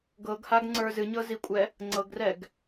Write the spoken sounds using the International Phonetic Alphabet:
ɡ ɤ ɡ h a ɡ ŋ͡ǀ ə˞ z ɨ ɲ ɤ z i kʷʼ ɛ | ŋ͡ǀ ɤ ɡ r ɛ ɡ

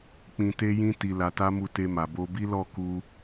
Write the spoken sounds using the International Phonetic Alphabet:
k͡p ĩ˧ t e˦ j ĩ˦ t i˧ l a˧ t a˦ m u˧ t e˧ m a˨ b o˧ b i˦ l ɔ˦˨ k u˧

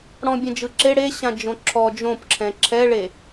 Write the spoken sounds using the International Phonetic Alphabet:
ɽ ɔ̃ bʲ ɛ̃ d͡ʒ ɯ ǁ e ɽ e ɕ ã d͡ʒ õ ǁʰ ɔ d͡ʒ õ p ǁʰ ɛ̃ ǁʰ ɛ ɭ e

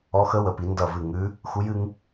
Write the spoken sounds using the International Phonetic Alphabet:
ɔ˦˥ x ə˦˥ w ə˨˥ p i˨˥ n d ʌ˥˧ v ɨ˥˧ ŋ ʉ˦˥ | x u˦˥ j ɨ˦˥ ŋ

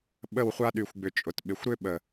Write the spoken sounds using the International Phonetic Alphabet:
ɓ ə˦˨ w χʷ a˦ ɗ y˨ xʷ ɡ͡b ʏ˨ t͡ʃʼ ʊ˨ t ɓ ɪ˨ xʷ ɾ ʏ˦ ɓ ə˨

